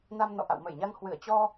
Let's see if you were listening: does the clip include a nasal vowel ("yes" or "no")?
no